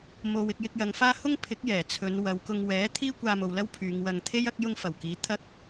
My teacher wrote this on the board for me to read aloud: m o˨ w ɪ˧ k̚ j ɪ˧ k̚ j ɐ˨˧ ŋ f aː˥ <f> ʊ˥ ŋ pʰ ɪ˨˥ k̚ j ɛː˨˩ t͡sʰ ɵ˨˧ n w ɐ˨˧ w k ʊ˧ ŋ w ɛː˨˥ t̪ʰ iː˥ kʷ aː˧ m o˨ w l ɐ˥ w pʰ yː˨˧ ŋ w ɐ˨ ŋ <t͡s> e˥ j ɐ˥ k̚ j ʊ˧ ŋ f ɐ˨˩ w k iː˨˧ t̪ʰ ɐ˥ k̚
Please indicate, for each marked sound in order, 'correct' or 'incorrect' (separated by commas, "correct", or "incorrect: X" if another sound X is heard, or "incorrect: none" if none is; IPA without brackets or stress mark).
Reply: incorrect: h, incorrect: t̪ʰ